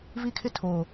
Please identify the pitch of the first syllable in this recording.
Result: high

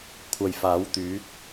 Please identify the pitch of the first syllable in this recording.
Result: low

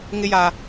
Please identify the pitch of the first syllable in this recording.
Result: high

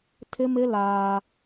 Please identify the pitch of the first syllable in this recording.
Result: high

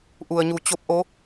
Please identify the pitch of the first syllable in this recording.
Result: low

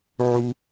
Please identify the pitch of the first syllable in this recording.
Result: high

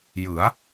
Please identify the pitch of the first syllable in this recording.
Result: rising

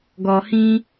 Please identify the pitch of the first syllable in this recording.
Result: low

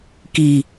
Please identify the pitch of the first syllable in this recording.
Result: low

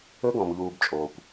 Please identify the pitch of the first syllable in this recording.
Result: high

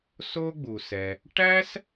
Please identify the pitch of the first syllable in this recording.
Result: high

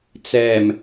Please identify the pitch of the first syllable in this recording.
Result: low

